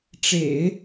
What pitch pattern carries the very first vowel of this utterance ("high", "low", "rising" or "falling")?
low